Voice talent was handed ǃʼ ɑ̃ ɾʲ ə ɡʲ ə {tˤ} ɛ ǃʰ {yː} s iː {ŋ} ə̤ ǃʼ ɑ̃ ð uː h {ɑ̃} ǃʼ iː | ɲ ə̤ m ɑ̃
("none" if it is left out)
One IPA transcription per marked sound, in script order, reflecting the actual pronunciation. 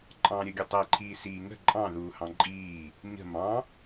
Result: tˤ, iː, ŋ, ɑ̃

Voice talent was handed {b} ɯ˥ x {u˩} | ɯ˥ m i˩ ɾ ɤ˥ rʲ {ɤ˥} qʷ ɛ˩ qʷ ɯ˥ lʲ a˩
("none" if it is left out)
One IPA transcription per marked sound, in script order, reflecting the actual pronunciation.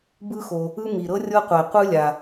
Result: b, o˩, ɤ˥

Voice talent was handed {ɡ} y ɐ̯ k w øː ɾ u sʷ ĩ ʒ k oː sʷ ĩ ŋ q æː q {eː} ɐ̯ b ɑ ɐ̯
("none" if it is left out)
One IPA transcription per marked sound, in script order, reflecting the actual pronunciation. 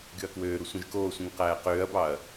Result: ɡ, øː

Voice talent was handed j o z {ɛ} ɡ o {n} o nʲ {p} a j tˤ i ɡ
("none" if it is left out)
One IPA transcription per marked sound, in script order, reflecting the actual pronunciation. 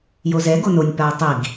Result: ɛ, n, p

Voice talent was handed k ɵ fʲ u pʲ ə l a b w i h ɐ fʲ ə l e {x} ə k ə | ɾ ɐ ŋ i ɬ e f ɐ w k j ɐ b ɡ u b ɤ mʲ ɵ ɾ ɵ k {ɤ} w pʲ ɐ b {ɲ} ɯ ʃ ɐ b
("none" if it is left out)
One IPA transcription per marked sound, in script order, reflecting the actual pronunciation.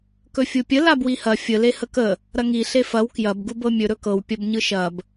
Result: h, ɤ, ɲ

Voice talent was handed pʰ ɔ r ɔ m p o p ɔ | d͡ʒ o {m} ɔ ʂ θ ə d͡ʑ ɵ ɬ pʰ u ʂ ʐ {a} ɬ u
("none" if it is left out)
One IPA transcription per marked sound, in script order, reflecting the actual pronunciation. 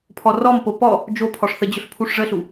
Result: pʰ, ə

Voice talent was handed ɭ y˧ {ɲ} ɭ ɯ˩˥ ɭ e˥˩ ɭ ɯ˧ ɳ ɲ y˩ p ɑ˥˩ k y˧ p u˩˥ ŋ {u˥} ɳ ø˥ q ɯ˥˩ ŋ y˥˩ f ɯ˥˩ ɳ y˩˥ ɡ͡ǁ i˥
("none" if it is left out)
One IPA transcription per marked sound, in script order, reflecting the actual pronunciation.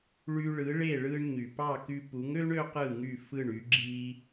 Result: none, ø˥

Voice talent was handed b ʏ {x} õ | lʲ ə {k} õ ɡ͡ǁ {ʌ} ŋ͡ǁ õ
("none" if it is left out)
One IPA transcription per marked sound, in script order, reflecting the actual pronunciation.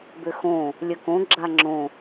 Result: x, k, a

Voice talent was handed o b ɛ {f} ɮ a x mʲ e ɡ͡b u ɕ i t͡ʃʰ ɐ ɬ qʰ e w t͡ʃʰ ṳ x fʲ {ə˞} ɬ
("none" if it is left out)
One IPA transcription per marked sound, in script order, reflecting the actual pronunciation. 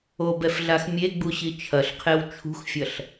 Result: f, ɐ

